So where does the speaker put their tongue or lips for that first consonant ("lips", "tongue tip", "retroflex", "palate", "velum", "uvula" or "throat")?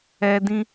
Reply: tongue tip